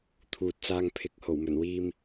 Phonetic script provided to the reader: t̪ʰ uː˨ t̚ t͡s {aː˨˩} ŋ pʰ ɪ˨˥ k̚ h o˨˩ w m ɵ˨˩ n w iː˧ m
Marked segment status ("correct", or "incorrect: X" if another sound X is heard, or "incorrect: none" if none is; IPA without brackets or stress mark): incorrect: aː˧